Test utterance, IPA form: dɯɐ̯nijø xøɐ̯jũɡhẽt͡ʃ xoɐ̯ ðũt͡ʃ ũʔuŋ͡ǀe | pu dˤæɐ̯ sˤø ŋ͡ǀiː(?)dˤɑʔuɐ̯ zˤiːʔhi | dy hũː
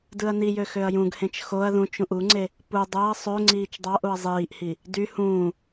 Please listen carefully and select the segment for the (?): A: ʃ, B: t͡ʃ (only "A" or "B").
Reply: B